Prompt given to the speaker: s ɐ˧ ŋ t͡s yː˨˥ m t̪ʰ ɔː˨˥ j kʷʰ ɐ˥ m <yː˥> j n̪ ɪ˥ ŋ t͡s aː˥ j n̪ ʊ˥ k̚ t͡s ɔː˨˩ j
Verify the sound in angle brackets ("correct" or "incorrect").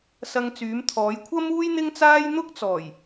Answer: incorrect